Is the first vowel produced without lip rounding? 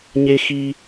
yes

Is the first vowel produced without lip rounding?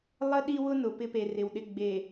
yes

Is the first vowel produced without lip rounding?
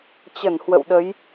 yes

